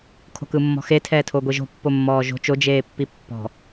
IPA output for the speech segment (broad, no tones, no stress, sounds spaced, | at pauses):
kʰ o̤ k ɯ mː ɔ̤ x e tʰ ɛː tʰ o ɡʷ i ʒ o̤ pː o mː ɔː ʒ o̤ t͡ʃ o d͡ʒ eː pː i pː ɔ̤